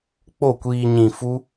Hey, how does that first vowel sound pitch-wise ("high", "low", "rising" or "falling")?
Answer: falling